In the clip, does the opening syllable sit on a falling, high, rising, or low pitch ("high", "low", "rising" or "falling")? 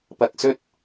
low